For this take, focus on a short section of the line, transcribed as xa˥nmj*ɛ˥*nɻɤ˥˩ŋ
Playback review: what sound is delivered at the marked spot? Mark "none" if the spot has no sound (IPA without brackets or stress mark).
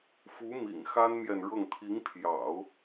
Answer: ɛ˨